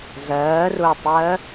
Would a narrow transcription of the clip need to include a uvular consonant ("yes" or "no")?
no